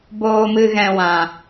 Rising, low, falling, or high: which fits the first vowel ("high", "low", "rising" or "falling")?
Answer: low